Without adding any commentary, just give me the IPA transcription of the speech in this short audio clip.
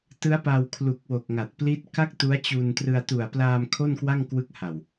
t ɯ˦˥ a̯ p a˧ w kʰ l u˨˩ k̚ w o˨˩ k̚ ŋ a˨˩ t̚ p l i˦˥ t̚ k a˥˩ k̚ t u˦˥ a̯ t͡ɕ u˧ n t r ɯ˧ a̯ t u˨˩ a̯ p l aː˧ m kʰ o˥˩ n k w a˥˩ ŋ k w ɯ˦˥ k̚ h a˨˩ w

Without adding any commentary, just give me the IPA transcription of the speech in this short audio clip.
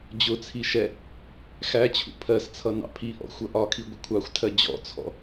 d͡ʑ ʊ t͡sʰ i ʃ ɛ | x æ t͡ɕʰ ṵ pʰ ɜ s t͡sʰ ʌ n ɑ̰ pʰ i ʔ ɔ̰ xʷ ʌ ʔ ɒ kʰ i ɡʷ ʌ kʷʰ ɑ xʷ tʰ ɜ d͡ʑ ɔ̰ t͡sʰ ɔ̰

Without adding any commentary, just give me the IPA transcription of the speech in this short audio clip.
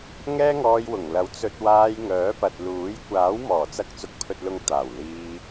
ŋ ɛː˥ ŋ ɔː˧ j w ʊ˨˩ ŋ l ɐ˨˥ w t͡s ɵ˧ t̚ w aː˧ j ŋ œː˨˥ p ɐ˨ t̚ l uː˨˥ j kʷ aː˨˥ w m ɔː˨˩ t͡s ɐ˧ k̚ t͡s ʊ˨ k̚ pʰ ɵ˨ t̚ l ʊ˨ ŋ t̪ aː˨˩ w l iː˧

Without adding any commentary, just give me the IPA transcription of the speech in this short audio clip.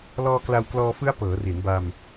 l ɔː˧ k l a˧ w k l ɔː˧ f ɯ˦˥ a̯ p ɤː˩˦ r i˩˦ n b a˧ m

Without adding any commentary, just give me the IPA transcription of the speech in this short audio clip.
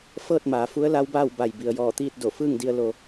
f ɤː˥˨ t̚ m aː˩˧ f u˧˥ ə̯ l a˧˥ w b aː˥˨ w b a˧˩ j b i˩ ə̯ j ɔː˧˩ t̪ iː˥˨ t̚ d o˧˩ f ɯː˥˨ ŋ d i˧ ə̯ l o˧

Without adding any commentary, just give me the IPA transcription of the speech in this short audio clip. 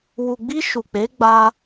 w u˨ ɡ͡b i˧ ʃ u˨ k͡p e˨˦ ɡ͡b a˧

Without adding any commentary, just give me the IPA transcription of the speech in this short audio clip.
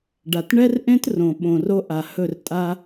ɖ a˨ t ɳ ɛ˦ r ʔ ẽ˦ t r õ˨ ɓ õ˨ r o˦ ʔ a˨ h ɵ˦˨ r tʼ a˦

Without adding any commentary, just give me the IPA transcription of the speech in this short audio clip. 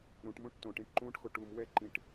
ɾ ũ ʈ m ũ ʈ t õ ʈ ĩ ʈ ǃ ũ ʈ x o ʈ u m w ɛ ǃ ĩ ʈ

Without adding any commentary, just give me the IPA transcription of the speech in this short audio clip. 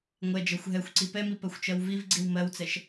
ŋʷ ɛ d͡ʒ ɜ xʷ ɦ ɛ xʷ ǀ i p ɛ m i p ɜ xʷ t͡ʃ ɜ w v i v ɡ͡ǀ i w m ɜ w t͡s ɛ ʃ

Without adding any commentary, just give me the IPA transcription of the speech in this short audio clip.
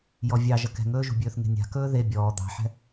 j ɔ vʲ ɑ ʒ ɐ k ɛ̤ ŋ ɵː ʒ ṳ bʲ ɵː θ ŋ e̤ nʲ a̤ k ɵː ð e bʲ ɔː d̪ ɑ̤ ħ ɛ̤

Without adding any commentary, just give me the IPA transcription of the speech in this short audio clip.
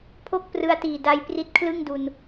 pʰ o˥˩ k̚ p r ɯ˧ a̯ t iː˨˩ d a˧ j p r i˦˥ t̚ kʰ l ɯ˥˩ ŋ d u˧ n

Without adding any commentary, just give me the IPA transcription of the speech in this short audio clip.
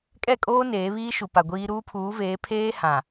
kʼ ɛ˦˨ kʼ oː˦ n eː˨˦ β iː˦ ʃ u˨ p a˨ ɡʷ iː˦ ɾ uː˦ pʰ uː˨˦ v eː˨˦ pʰ eː˦ h ã˨

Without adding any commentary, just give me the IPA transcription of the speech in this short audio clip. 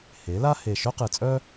h e˩˥ l a˥ h e˧˩ ʃ œ˥ q ɨ˧˩ t͡sʼ œ˥

